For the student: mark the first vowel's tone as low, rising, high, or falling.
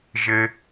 low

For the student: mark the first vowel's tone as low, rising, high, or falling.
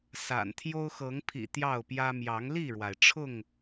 low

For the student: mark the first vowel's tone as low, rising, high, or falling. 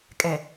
low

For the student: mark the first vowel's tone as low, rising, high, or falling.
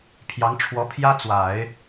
rising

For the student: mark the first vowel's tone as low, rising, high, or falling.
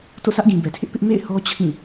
falling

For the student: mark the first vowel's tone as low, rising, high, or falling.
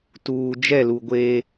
low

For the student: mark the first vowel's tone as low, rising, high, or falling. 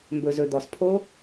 low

